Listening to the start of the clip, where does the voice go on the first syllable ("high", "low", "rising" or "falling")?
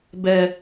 low